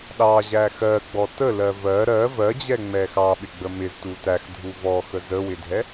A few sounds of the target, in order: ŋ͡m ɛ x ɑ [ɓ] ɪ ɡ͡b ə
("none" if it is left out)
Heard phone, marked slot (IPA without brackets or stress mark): ɓ